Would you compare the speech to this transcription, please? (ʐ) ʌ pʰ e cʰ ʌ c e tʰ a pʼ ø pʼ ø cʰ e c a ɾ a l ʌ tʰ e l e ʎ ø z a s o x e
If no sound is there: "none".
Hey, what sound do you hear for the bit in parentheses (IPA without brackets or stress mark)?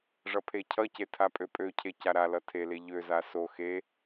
ʐ